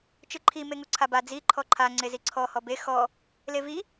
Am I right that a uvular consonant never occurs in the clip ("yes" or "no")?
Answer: yes